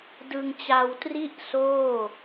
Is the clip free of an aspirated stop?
yes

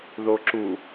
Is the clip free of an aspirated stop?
yes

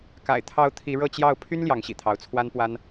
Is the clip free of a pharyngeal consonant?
yes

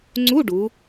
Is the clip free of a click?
no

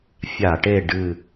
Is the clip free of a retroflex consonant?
no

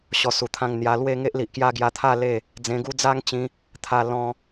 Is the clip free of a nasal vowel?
no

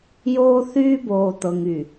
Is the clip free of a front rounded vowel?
no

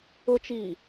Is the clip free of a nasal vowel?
yes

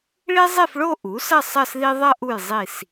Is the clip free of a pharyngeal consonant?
yes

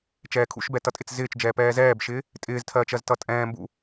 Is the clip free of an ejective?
no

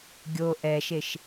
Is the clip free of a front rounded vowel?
yes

